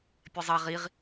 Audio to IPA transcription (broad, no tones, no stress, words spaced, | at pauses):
pʲɛzˤa ʁiʁ